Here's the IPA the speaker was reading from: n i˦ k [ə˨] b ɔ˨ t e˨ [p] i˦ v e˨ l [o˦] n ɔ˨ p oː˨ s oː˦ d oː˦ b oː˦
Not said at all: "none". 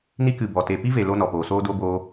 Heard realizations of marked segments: ɨ˨, p, o˦

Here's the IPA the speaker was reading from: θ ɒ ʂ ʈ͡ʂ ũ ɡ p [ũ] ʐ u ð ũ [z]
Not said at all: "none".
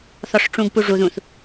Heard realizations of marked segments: u, θ

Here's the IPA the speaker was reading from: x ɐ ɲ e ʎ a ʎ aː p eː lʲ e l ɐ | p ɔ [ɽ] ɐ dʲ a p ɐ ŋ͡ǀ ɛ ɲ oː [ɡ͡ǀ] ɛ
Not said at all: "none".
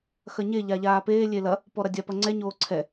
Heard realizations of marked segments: ɾ, ǀʰ

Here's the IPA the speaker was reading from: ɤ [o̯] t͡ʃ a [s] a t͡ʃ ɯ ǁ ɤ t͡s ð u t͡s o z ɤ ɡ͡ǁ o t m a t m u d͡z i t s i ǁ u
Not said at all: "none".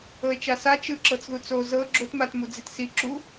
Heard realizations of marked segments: e̯, s

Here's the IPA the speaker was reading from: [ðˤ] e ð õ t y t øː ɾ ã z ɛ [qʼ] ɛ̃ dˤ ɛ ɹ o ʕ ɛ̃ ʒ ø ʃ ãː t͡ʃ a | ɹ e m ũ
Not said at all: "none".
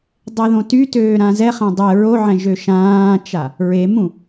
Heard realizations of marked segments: dˤ, χ

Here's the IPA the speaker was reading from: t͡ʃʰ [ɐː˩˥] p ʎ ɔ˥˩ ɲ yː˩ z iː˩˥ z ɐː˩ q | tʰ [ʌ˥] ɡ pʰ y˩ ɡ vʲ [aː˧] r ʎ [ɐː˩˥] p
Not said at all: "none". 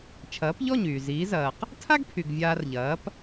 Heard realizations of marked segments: ɐː˩˥, a˥, aː˧, ɐː˩˥

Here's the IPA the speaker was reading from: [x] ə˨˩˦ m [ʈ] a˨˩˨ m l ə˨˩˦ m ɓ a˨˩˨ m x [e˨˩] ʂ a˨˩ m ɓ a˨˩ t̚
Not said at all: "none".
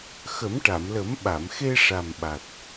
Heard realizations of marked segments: x, ʈ, e˧

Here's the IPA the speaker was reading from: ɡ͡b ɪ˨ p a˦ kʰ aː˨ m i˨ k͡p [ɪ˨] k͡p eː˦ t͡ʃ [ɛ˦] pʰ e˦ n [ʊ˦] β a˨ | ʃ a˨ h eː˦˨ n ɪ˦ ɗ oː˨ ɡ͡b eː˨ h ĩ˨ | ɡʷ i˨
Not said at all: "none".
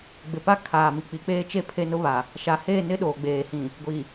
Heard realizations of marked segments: i˨, e˦, ʊ˦

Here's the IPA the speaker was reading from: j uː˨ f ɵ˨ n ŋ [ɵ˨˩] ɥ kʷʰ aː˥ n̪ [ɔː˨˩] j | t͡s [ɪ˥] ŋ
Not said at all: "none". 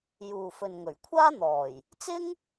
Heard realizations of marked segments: ɵ˨˩, ɔː˨˩, ɪ˥

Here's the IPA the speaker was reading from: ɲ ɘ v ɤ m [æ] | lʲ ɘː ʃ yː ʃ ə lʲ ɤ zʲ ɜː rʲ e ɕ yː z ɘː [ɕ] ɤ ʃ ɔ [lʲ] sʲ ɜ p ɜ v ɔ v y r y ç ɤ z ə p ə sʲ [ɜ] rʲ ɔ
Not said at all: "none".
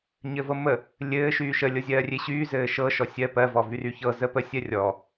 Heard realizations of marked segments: ə, ʃ, none, ɜ

